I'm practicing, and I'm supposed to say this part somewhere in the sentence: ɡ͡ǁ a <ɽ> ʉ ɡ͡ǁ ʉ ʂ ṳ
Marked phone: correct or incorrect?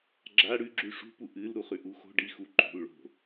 correct